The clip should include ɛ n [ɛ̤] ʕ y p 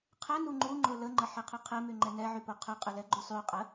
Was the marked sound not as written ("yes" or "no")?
yes